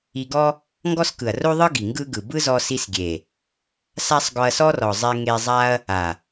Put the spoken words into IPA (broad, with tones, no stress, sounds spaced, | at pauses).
i˧ ɡ ɔ˦ | ŋ ɡ ɔ˦ s k ɯ˨ ɐ̯ r o˦ ðˤ ɯ˦ ɡ i˨ ŋ ɡ ɯ˦ ɡ ɯ˨ b ɯ˦ z ɔ˧ s i˧ s ɡʲ e˨ | s a˦ sˤ ɡ ɔ˧ ɐ̯ s ɔ˦ r ɔ˨ zˤ e˧ ŋ e˧ zˤ a˦ ɐ̯ | a˨